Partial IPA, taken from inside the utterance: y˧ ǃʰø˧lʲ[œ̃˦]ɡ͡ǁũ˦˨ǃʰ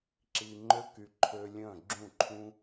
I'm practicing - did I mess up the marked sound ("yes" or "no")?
yes